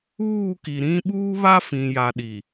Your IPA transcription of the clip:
uː˦˨ k i˨ ɾ ĩ˦ ɓ uː˦ β a˦ f ĩ˨ j a˨ ɗ i˨

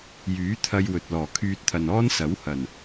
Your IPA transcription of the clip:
j yː˨˥ t̪ʰ ɐ˧ j w ɵ˨ t̚ l ɔː˨˩ kʰ yː˧ t̚ t̪ʰ ɐ˨ n ɔː˥ n s ɐ˨˥ w h ɐ˨˩ n

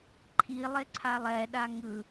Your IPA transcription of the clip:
ǃʰ i lˠ e ǀʰ a lˠ ɛ ɗ a ŋ ɯ

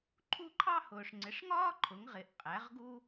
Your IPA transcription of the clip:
ǃʰ u˥˧ ǃʰ ɑ˥ h ʊː˨ ʂ ŋ͡ǀ ɪ˩˥ ʂ ŋ ɒː˥ ǃʰ ʊ˩˥ ŋ ʁ ɪ˩˥ ʔ qʼ æ˩˥ ʁ ɡ u˥

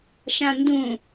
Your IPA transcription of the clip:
ʃ ã n d ũ

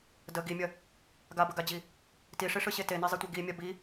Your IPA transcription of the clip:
d ə ɡ i mʲ ɐ | ɡ a b ə ɡ a d͡ʑ i | t i ʂ i ʂ ɯ ɕ e t e n e zˤ i tʷ e ɡ i mʲ a b i

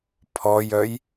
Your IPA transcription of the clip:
pʰ ɔ j œ j

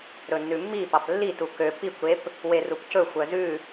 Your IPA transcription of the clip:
ɾ ɵ nː ʉ mː i p ɑ p lː i t u k ø p i kʷ ɾ e p | w e r u p c ɵ xʷ œ z ʉ

